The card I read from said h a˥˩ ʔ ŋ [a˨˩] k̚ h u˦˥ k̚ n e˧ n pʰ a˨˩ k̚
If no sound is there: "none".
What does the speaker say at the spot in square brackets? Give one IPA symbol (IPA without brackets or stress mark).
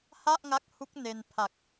a˦˥